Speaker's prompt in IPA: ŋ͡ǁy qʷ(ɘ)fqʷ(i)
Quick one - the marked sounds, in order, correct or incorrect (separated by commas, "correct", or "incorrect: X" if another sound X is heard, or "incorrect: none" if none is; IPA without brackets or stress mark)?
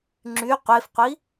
incorrect: e, correct